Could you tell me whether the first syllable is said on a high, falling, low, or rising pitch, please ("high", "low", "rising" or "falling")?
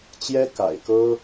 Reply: high